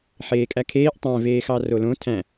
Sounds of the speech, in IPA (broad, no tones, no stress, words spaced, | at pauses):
ħeːkʼækʰeːʔ tˤæ̃ veːxɑrolõ tʰæ̃